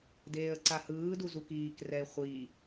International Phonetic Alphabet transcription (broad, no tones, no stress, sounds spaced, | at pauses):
d eː ə̯ ǀ a h ɯː d u z u k iː k r ɛ ɪ̯ χʷ i